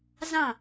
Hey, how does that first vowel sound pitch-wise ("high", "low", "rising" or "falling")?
falling